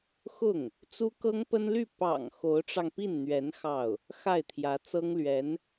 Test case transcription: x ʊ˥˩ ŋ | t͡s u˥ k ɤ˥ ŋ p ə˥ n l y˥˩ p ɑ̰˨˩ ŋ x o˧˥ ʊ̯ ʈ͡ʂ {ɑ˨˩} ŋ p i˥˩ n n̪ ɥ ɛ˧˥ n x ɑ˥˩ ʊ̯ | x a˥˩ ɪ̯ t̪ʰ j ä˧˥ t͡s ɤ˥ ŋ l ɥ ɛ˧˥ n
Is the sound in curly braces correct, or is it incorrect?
incorrect